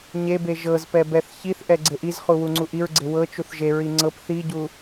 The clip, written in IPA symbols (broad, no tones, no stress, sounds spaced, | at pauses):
ɲ e b e ʒ ɤ z p ɛ b ɛ θ ç i θ ʔ ɛ ɡ͡ǀ e ʔ i z χ u w u ŋ͡ǀ u ʔ i ɹ ɡ͡ǀ e w ɤ t͡ʃ u θ ʒ e ɹ i ŋ͡ǀ ɤ p θ i ɟ u